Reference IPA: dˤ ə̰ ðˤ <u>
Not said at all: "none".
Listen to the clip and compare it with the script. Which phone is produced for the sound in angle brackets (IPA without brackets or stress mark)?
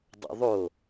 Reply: o